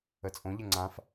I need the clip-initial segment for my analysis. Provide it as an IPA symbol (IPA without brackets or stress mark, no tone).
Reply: ə